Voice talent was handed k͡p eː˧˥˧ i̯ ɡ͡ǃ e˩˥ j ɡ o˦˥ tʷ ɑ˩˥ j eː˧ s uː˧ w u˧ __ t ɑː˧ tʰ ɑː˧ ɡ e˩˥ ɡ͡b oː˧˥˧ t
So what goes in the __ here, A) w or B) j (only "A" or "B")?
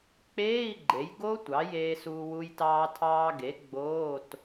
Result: B